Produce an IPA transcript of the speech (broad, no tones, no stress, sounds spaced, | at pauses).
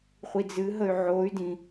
χʷ i d͡z ɨ ɦ ə y̯ ʕ o y̯ d ĩ